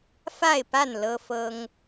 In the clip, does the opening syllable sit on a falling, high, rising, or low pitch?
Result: falling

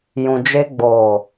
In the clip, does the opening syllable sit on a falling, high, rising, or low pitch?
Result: low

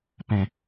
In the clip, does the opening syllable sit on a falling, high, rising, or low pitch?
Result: low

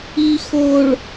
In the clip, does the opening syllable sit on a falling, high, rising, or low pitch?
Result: low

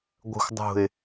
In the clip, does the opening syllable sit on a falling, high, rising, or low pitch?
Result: low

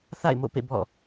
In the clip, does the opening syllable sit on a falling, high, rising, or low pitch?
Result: falling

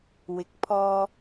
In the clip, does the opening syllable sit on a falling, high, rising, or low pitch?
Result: rising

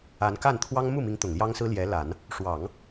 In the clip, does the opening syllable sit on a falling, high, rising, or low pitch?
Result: rising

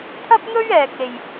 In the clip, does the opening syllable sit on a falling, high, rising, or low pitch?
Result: high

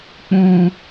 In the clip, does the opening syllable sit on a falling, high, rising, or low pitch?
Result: low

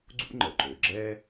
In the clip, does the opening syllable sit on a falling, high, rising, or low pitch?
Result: high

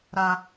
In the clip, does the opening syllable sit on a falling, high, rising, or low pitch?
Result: high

